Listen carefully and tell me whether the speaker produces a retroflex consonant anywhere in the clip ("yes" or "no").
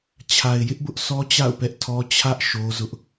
no